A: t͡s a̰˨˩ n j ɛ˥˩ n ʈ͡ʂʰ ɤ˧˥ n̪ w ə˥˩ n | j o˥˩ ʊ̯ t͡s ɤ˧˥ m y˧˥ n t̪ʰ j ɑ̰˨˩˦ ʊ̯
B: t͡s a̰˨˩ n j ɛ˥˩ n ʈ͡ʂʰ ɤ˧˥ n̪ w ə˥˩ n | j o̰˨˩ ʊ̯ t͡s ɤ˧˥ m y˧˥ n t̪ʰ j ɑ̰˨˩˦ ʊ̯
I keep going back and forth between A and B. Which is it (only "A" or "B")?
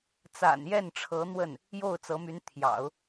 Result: A